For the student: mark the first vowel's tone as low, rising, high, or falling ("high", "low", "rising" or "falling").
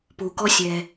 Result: low